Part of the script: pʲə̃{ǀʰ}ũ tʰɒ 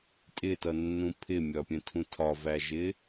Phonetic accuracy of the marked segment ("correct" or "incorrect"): incorrect